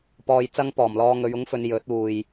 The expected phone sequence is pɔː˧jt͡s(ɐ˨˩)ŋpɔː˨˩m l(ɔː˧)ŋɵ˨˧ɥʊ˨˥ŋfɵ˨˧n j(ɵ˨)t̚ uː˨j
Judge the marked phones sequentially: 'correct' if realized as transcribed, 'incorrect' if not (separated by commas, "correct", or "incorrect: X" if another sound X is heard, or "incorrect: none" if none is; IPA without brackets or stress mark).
incorrect: ɐ˥, correct, incorrect: ɵ˨˥